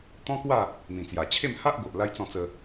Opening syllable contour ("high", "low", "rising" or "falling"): high